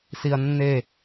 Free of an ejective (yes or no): yes